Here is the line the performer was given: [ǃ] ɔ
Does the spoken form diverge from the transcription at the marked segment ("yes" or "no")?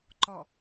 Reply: no